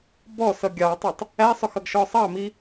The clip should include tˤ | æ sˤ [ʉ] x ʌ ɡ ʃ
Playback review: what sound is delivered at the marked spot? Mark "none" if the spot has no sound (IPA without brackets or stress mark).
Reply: ʊ